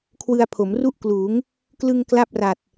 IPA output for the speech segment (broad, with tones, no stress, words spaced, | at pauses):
kʰwɯ˧a̯pʰo˩˦mru˥˩ʔkluː˩˦ŋ | klɯ˧ŋ kla˥˩p̚ra˨˩t̚